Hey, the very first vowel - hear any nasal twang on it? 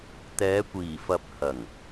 no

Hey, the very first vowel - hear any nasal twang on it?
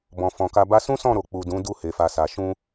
yes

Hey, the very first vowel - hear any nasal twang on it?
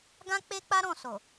yes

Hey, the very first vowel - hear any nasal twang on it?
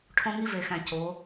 yes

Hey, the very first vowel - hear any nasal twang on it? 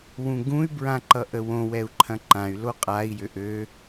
yes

